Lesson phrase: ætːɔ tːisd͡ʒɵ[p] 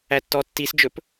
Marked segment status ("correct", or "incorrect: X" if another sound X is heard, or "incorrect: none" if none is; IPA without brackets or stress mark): correct